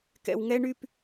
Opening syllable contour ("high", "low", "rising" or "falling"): low